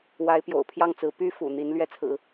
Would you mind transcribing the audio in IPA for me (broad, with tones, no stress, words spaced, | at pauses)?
wa˧˥ɪ̯pjo̰˨˩ʊ̯ pʰjɑ˥˩ŋt͡sɹ̩˧˥ py˥fṵ˨˩ n̪i˧˥n lɥɛ˥˩t͡sʰɹ̩˨˩˦